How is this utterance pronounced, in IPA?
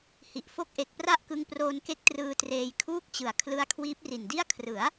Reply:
h i˨˩ ʔ f o˦˥ k̚ ʔ e˨˩ k̚ p r a˥˩ ʔ k ɯ˧ ŋ p r oː˧ n k e˦˥ k̚ t r ɯː˧ t r eː˧ j kʰ uː˥˩ k̚ t͡ɕ ɯ˨˩ a̯ kʰ l ɯ˦˥ a̯ kʰ w iː˦˥ p̚ r i˨˩ n d i˥˩ a̯ kʰ r ɯ˩˦ a̯

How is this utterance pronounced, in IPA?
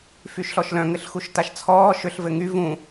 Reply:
f y ʃ ɬ ɔ ʃ l œ̃ ŋ ɘ ɬ x u ʃ t a ʃ t͡sʰ ɔː ʃ ʏ ɬ v ɘ ŋ y v ũ

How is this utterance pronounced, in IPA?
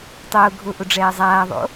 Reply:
tˤ ʊː ɡʱ ʊ ʔ ʊ ɖ͡ʐ ɛː zˤ aː ðˤ o̰

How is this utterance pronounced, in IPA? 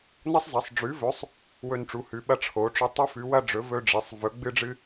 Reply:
n ɐ˥ sˤ z ɐ˨˥ sˤ ɖ͡ʐ ʉ˨˥ v ɵ˨˥ sˤ | w ɵ˥ n ʈ͡ʂ u˨˥ h ʉ˨˥ ɓ ɐ˥ ʈ͡ʂʰ o˨˥ ʈ͡ʂ ɵ˥ tˤ u˥ f ʉ˨˥ w ɐ˥ ɖ͡ʐ ɵ˨˥ v ɵ˥ ɖ͡ʐ e˨˥ sˤ v ɵ˨˥ ɡ͡b ɨ˥ ɖ͡ʐ ɨ˥

